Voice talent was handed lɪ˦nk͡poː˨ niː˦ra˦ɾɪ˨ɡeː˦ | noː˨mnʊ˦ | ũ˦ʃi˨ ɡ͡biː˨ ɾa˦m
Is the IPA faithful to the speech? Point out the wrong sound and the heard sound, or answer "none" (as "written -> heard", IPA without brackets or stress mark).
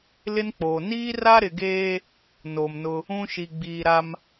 none